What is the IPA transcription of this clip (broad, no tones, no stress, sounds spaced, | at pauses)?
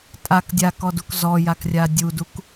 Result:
tʼ a k dʲ a k ɔ d u k z ɔ j a k rʲ a dʲ u d u k